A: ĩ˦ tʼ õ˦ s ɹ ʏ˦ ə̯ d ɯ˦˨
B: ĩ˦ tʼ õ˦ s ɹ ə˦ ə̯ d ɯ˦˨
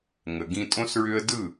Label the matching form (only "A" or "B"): A